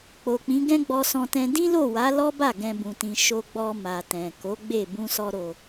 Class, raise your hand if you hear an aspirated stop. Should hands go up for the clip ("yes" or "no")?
no